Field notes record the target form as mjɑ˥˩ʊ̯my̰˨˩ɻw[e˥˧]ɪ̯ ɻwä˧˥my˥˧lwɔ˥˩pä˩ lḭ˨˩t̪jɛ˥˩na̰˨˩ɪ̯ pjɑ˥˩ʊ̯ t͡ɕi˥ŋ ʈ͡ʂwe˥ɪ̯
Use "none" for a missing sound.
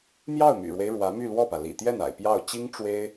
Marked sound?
e˦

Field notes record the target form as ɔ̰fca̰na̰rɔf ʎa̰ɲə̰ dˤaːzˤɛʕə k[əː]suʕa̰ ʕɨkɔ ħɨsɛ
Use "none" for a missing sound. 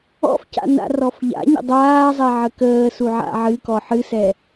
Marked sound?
əː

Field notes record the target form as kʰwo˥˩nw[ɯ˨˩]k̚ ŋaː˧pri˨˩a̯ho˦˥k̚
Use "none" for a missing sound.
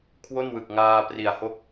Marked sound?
ɯ˨˩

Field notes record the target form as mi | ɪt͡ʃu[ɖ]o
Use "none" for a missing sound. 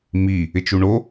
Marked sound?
ɳ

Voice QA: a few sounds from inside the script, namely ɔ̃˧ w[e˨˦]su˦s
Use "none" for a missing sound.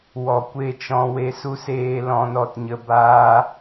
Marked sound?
e˦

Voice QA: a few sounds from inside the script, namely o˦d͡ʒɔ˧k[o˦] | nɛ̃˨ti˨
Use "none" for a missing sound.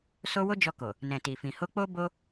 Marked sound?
o˨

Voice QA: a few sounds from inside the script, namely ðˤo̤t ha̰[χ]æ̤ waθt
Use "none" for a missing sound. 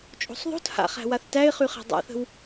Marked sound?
χ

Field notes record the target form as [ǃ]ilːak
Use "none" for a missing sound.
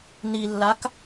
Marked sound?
n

